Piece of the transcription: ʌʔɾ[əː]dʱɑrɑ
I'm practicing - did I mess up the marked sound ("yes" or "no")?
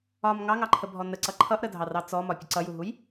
yes